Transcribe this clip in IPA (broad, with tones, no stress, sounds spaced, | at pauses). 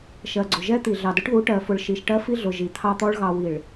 ʃ ɜ˨ ɡ͡ǀ ʊ˨ ʒ ɛ˦ t̪ i˨ ɮ ɑ˨ d ʊ˦ ʈ ð u˨˦ ʈ ɜ˨ f ʊ˨ ɭ ʃ i˨ ʃ ʈ ɜ˦ f i˦ ɮ ʊ˨ ʒ i˨ t̪ʰ ɑ˦ t̪ ɔ˦ ɭ ɣ ɑ˨ w i˨ ɭ